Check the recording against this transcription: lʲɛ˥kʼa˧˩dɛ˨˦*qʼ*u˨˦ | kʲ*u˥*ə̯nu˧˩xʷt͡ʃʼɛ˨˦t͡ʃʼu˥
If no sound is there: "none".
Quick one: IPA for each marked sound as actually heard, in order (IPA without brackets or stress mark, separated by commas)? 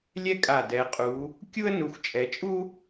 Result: qʼ, u˥